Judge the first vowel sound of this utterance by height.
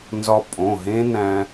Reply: low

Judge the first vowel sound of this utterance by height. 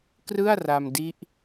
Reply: high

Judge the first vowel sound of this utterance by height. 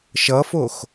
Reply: mid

